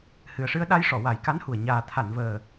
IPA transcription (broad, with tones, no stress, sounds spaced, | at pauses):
h ɨ˨˩ ə̯ ʂ ɨ˧ ə̯ ɗ a˧ j ʂ ɔ˨˩˨ w a˨˩˦ j k a˧˥ n h u˨˩ ə̯ ɲ aː˨˩ t̪ʰ a˨˩˨ n v əː˨˩